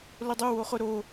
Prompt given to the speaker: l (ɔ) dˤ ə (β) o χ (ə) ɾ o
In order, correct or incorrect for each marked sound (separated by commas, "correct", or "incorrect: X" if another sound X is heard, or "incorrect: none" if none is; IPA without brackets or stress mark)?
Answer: incorrect: ʊ, incorrect: w, incorrect: ʊ